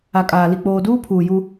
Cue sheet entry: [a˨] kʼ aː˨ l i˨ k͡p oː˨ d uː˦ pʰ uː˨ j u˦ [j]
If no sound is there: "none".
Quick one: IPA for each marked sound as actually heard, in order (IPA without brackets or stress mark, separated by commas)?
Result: a˨, none